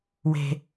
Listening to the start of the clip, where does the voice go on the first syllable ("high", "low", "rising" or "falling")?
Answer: low